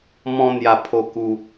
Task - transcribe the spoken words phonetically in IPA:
m ɔ̃˧ n̪ j a˨˩ pʰ o˨˩ k u˨˩

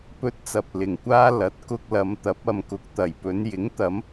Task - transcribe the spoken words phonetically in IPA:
p ɵ˧ t̚ t͡s ɐ˨ p̚ l ɪ˨ ŋ kʷ aː˥ l ɐ˨˥ t̚ k ʊ˧ k̚ l ɐ˨˧ m t̪ ɐ˨˥ p̚ ɐ˨ m k ʊ˨ k̚ t̪ ɐ˨˩ j p ɵ˨˧ n j ɪ˨˥ ŋ t̪ ɐ˨˥ m

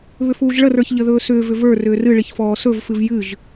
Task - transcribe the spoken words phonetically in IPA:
β ʏ f uː ʒ ɭ ə r ə˞ ç ʎ ə ð ɵː s ʏː v ʏ v ə˞ r ʏː r ɨ ɭ i ç f ɔː s ɵ v f ɨ v j ɨ ʒ

